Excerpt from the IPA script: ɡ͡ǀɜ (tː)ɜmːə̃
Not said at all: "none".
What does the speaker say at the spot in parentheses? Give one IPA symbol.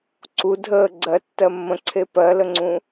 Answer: tː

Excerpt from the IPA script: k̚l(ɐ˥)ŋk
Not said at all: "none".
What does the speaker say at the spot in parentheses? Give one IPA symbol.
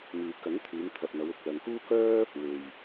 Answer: ɐ˨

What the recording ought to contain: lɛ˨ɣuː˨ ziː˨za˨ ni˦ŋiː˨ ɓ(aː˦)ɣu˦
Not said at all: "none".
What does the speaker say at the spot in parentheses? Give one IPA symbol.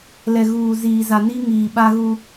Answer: a˦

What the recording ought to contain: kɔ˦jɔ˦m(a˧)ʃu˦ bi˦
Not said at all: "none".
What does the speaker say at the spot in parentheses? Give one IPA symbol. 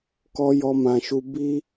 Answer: ã˧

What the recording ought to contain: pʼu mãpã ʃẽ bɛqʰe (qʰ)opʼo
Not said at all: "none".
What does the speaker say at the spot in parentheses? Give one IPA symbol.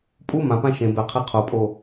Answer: qʰ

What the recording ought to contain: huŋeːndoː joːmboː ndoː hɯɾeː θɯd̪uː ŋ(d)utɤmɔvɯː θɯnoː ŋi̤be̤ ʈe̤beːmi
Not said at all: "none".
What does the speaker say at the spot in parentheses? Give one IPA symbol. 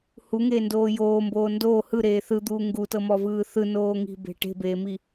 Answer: ɡ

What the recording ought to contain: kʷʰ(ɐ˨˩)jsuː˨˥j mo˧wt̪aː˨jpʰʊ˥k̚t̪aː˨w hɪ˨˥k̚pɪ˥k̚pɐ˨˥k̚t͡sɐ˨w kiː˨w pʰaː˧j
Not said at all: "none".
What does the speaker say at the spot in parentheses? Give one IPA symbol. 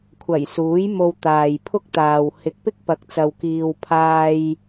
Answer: ɐ˨˩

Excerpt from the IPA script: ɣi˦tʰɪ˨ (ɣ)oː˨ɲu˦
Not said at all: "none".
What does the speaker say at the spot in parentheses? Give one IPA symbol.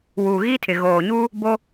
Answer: ɣ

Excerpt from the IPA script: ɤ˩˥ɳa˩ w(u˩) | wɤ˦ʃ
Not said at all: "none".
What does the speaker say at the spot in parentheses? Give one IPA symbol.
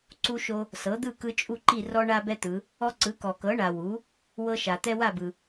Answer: u˩˥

